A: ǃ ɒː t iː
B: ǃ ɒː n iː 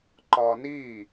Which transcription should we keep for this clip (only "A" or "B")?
B